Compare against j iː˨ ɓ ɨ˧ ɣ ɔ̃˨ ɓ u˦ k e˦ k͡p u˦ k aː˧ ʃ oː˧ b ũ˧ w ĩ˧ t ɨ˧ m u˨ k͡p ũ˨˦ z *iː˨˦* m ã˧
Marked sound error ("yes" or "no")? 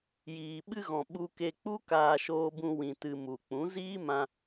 yes